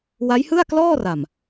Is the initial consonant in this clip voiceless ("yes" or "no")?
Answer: no